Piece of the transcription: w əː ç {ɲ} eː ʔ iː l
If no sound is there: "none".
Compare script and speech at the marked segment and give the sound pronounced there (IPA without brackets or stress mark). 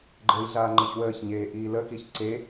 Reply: ɲ